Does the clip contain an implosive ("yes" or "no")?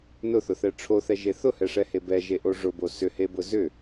no